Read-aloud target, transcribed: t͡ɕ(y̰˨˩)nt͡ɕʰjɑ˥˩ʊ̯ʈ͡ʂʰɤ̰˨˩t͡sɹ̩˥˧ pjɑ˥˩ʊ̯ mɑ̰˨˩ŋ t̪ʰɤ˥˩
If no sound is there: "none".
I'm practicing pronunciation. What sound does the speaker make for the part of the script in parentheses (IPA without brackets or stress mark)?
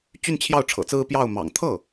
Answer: y˥˧